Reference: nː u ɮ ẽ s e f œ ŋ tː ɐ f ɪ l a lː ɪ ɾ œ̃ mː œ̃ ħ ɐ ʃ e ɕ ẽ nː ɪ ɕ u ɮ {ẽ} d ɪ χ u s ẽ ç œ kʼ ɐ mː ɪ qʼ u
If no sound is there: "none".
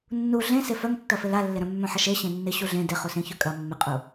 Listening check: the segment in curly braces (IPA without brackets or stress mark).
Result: ẽ